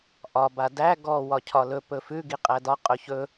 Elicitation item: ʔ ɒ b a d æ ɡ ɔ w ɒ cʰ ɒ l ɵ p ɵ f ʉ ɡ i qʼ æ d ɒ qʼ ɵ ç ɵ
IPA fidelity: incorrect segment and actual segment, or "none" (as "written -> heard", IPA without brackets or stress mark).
none